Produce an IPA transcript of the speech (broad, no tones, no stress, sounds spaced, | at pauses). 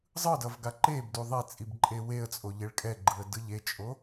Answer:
zˤ ɯ d ʌ v ɡ a ǃ e b d u ðˤ e t͡sʼ i b ǃʼ e w e ə̯ t͡sʼ o ʎ e ɭ kʼ ɛ ɡ͡ǃ ɯ ə̯ d ɯ ʎ e t͡ʃʼ o